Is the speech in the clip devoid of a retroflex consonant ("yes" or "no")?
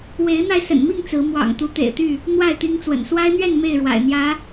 no